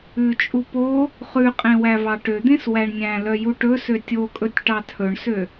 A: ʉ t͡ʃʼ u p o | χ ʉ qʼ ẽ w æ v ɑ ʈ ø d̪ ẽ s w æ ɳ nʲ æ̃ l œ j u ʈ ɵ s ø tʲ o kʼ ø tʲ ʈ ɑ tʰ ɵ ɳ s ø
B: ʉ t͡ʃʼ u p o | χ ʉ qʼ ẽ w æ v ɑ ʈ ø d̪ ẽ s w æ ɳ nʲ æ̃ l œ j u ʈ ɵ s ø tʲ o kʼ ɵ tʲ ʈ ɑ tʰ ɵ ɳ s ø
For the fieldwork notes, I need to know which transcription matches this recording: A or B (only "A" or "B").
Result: B